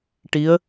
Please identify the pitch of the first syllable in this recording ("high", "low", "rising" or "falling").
rising